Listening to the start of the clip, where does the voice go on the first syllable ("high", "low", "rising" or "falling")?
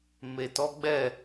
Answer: low